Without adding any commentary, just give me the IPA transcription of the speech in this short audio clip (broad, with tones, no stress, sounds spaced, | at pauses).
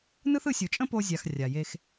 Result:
n ɯ˦ θ ɯ˧ sʲ u˨ t͡ʃʼ ə̃˦ p o˧ zʲ a˨ x rʲ a˨ j e˧ x